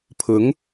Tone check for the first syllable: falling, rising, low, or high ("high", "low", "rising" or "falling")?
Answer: rising